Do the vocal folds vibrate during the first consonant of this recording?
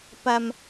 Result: no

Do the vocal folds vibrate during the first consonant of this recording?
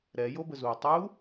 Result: yes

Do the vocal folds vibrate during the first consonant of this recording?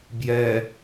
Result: yes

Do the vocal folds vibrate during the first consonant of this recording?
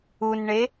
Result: yes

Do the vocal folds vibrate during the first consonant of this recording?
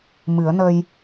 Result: yes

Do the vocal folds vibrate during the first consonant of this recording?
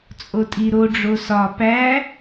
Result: no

